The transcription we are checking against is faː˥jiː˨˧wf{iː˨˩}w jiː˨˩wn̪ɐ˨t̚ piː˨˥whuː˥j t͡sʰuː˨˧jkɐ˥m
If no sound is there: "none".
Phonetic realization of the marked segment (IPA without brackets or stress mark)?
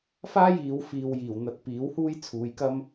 iː˨